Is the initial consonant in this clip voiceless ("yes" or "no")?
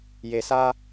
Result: no